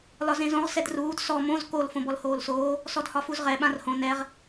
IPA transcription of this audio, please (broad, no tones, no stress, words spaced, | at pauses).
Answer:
lɒzẽzõʁ sɛdruːd sɔ mõz kol fõbɔlhoːlsoː | sɔdhɒfuzʁɛ ɓãrhõ nɛʁ